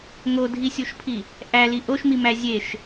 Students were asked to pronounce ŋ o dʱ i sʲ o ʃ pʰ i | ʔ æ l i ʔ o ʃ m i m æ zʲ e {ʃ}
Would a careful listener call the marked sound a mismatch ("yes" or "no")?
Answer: no